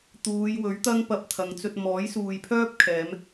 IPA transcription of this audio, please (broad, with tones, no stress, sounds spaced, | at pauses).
t̪ uː˨˧ j w ɵ˨˥ ɥ t̪ ɐ˥ ŋ p ɐ˧ p̚ t̪ʰ ɐ˨˧ ŋ t͡s ɵ˧ t̚ m ɔː˨˥ j s uː˨ j pʰ œː˥ p̚ kʰ ɛː˨˧ m